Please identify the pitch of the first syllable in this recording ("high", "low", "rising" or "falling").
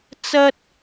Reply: high